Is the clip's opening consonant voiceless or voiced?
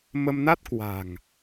voiced